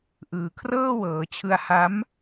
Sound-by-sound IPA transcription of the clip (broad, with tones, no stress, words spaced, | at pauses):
ʔɯː˨˩kʰrɤː˥˩wɤː˩˦t͡ɕʰɯ˧a̯ ha˦˥m